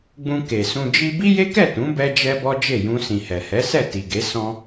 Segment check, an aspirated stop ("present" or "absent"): absent